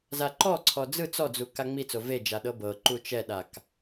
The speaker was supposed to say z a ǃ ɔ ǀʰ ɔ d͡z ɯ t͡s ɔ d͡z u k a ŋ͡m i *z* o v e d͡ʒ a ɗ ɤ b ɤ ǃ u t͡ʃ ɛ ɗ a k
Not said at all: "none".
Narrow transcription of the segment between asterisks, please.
t͡s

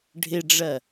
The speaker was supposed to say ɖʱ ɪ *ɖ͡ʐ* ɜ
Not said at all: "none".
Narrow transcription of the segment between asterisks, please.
ɖ͡ʐ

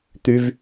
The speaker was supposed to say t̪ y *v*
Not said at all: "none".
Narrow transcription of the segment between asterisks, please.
v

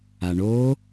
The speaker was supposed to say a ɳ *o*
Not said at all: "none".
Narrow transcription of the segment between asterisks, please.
o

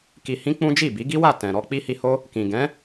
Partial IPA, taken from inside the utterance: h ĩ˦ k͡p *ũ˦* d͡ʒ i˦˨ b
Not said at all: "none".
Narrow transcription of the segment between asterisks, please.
ũ˦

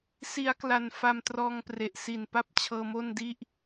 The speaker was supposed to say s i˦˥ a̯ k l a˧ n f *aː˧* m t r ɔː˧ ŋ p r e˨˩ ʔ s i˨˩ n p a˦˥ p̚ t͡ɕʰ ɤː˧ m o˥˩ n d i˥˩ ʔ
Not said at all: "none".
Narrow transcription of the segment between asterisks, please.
a˧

